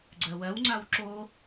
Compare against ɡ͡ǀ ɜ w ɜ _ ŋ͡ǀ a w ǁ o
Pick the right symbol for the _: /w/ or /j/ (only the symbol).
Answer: w